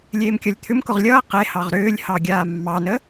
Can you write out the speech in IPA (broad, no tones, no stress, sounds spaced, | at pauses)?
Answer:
lʲ eː m kʲ ʌ lʲ t̪ʰ ʏ m k ʊ ʁ lʲ ʌː q e h ɑ ʁ ɾ ʏː lʲ h ɑ ɡʲ aː mː ɑ n ə